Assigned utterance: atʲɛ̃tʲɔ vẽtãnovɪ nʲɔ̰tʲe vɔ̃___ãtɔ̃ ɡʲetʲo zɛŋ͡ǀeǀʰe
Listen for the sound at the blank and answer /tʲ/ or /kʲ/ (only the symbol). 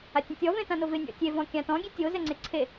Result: kʲ